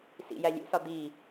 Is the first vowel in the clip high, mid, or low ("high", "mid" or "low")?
high